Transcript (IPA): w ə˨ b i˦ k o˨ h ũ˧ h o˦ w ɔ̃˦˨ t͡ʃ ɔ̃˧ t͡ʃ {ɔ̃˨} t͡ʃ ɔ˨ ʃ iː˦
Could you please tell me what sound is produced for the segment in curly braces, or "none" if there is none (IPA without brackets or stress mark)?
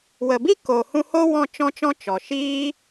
ɔ̃˧